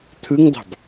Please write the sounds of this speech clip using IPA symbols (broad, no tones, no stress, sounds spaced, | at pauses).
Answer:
t̪ʰ ɯ ŋ d̪ ɑ̤ b